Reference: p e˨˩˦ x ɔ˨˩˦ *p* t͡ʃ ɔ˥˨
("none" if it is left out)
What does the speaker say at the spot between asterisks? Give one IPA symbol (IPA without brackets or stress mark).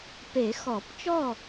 p